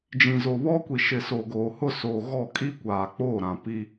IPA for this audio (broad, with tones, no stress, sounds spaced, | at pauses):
d͡ʒ ĩ˨ z o˨ β ɔ˦ kʷ i˨ ʃ ɪ˨ s o˨ ɡ oː˨ h ʊ˦˨ s oː˨ ɣ ɔ˦˨ kʼ i˦ kʷ aː˨ k͡p oː˦˨ ɾ ã˨ p i˦